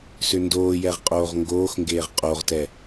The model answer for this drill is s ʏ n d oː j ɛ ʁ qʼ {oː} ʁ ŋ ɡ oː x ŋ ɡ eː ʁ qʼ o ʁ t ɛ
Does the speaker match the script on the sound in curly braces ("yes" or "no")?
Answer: yes